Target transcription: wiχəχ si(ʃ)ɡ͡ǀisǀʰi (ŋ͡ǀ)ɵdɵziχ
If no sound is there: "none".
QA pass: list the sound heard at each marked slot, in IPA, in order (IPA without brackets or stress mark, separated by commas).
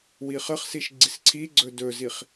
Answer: ʃ, ɡ͡ǀ